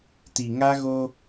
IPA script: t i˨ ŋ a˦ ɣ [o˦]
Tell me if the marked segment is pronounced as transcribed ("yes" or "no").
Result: yes